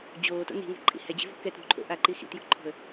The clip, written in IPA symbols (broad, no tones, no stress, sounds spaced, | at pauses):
d͡ʑ oː t o̰ n i̤ ŋ e̤ ǃʼ ḭ h ɛ d͡ʑ e̤ v ɔ̤ k ɛ t ɾ ṳ ǃʰ o̰ ʔ a ǃ i x ḭ t j o̤ ǃʰ ɔ̤ ə̯